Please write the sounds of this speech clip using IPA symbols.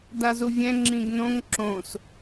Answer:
dazuvʲɛ̃ ŋ͡ǁĩɡnõŋ ǁõs

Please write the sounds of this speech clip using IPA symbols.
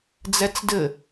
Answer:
d͡zɛt͡sdɘ

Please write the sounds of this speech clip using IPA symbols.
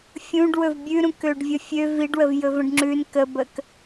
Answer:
fʲũɖwɵv bʲʉɾũkøɖ vʲəfʲø viɖwəvjɵ və̃ɖŋ͡ǁʉn kəbək

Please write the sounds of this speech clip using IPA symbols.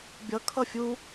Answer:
bʲʌ kʰʌfʲu

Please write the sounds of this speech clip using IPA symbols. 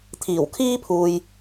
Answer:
t̪ʰiː˨˩wkʰiː˥pʰuː˨j

